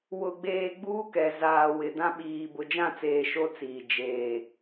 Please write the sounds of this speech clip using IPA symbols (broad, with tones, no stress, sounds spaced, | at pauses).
w ʊ˨ ɡ͡b eː˨ ɡ͡b uː˦ k ɛ˨ z aː˨ w ɪ˨ d ã˦ ɓ iː˨ b ʊ˨ d͡ʒ ã˦˨ t͡s eː˨ ʃ o˦ t͡s iː˨ d͡ʒ eː˨